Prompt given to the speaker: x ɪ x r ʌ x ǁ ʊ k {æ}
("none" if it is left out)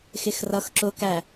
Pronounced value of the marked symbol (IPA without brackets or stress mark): æ